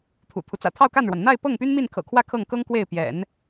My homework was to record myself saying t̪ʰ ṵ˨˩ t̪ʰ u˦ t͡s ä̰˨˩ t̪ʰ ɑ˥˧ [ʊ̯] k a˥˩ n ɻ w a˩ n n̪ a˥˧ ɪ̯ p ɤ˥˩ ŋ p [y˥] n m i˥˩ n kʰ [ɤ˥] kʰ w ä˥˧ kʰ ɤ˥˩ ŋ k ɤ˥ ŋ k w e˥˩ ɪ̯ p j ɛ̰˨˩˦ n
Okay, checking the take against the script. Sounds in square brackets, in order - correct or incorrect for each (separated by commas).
correct, correct, incorrect